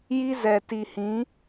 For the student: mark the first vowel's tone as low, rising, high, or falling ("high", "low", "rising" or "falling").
high